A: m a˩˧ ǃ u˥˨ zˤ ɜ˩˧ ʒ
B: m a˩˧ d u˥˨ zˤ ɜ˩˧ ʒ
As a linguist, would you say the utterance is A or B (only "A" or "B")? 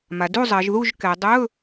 B